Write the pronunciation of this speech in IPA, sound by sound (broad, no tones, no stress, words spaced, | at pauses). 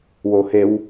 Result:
wohew